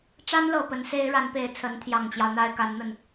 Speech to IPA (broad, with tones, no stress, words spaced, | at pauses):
ʈ͡ʂa˥nlɤ˨˩ pə˧˥nse˥ɪ̯ ɻa˧˥npe˨˩ɪ̯ t͡sʰə˧˥nt̪ʰjɑ˨˩ŋt͡ɕjɑ˦ʊ̯ n̪a˥ɪ̯ka˧˥nn̪ə˥˩n